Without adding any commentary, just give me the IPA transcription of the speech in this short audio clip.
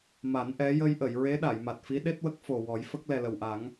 m a˨˩˦ n ʔ ɛ˧˥ j ə˧ j ʔ ə˨˩˨ j ɹ e˧˥ ɗ a˨˩˨ j m a˨˩ t̚ f i˧˥ ɗ e˦˥ t̚ w ə˦˥ k̚ f o˨˩ w ɔ˨˩˦ j f ə˦˥ k̚ l ɛ˨˩ l ə˨˩ w ʔ a˨˩˦ ŋ

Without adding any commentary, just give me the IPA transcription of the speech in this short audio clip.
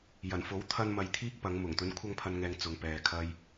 j ɐ˨˩ n f o˨˥ w t̪ʰ ɐ˧ n m ɐ˨ j t̪ʰ iː˥ k̚ p ɐ˨˧ ŋ m ʊ˨˩ ŋ t̪ ɵ˨˧ n kʷʰ ɐ˧ ŋ pʰ ɐ˨ n ŋ ɛː˨ ŋ t͡s ʊ˧ ŋ p ɛː˧ kʰ ɐ˥ j

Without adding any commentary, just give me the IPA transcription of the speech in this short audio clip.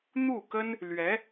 n̪ u˥˩ k ə˥ n | l ɥ ɛ˧˥

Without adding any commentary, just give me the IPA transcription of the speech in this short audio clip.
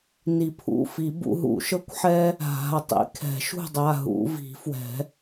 n i˨˩˦ pʰ ṵ˩˧˩ f i˨˩˦ b ṵ˨˦ ɦ ṵ˨˩˦ ʃ ɤ˥ kʷ ħ ɛ˥ | ɦ a̤˩˧˩ ɐ̯ tˤ ḭ˨˦ kʰ ɛ̤˨˩˦ ʃ ṳ˥˨ dˤ a˩˧˩ ɦ ṵ˨˩˦ v i̤˨˩˦ f w ɛ̤˨˩˦

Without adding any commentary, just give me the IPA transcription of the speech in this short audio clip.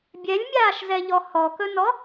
bʲ ɛ lʲ mʲ aː ʃ z ɛ ʎ ɔ h ɔ k ɵ n ɔ

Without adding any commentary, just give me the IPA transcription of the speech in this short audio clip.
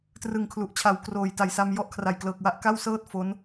t r ɯ˨˩ ŋ kʰ l u˨˩ ʔ t͡ɕʰ a˨˩ w k r oː˨˩ j t a˩˦ j s a˧ m j ɔ˦˥ ʔ kʰ r a˨˩ j k l ɤː˨˩ k̚ w a˥˩ ʔ k a˥˩ w s ɤː˥˩ t̚ f o˦˥ n

